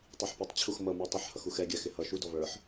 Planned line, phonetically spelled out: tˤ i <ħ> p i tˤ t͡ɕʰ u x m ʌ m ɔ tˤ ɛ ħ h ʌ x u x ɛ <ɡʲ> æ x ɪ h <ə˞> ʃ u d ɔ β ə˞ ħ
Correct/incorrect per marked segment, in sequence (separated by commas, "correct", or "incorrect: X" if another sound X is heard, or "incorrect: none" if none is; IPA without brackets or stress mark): correct, correct, incorrect: ʌ